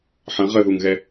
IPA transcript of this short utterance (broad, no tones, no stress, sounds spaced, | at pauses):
ħ ɐ̃ ʁ ə ð u ŋ ɣ ɛ